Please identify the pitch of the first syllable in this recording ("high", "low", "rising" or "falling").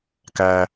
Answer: low